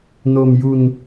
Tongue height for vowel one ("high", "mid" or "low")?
mid